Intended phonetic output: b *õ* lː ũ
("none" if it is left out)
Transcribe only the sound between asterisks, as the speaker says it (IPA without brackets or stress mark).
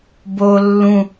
o